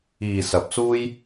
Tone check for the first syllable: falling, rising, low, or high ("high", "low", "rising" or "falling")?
low